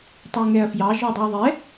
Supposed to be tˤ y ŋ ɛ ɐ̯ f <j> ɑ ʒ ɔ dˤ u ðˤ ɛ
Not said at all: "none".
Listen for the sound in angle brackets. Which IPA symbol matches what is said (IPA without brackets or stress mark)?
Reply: j